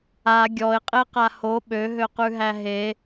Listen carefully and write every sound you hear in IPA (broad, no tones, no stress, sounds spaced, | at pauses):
a ɡʲ ɔ ɪ̯ qʼ e q a h o ɓ ø ɦ ø q ʉ ɦ æ ɦ e